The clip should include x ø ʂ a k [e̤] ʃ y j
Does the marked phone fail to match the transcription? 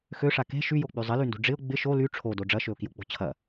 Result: no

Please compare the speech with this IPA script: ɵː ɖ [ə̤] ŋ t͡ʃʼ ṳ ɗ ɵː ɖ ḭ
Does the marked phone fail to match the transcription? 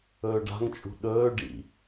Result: yes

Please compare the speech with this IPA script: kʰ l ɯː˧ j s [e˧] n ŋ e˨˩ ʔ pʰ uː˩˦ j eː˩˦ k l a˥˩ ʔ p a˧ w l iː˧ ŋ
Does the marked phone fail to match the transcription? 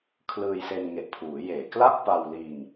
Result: no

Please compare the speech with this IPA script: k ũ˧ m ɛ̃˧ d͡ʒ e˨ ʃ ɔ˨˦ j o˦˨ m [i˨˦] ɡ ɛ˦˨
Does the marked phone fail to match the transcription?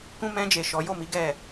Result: no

